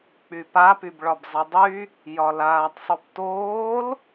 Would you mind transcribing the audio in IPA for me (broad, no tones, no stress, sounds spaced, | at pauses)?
k͡p y p a p y b ɭ ɒ b zˤ i dˤ y | j ɒ l aː tˤ sˤ ʉ p t oː l